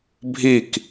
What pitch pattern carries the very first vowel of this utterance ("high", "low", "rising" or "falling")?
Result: falling